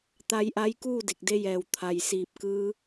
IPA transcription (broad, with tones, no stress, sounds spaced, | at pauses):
t̪ a˧ j ʔ a˧˥ j k uː˥˨ d e˧˩ k̚ d e˧ j ɛː˩ w t̪ʰ a˩ j s iː˧˩ p̚ k ɯː˧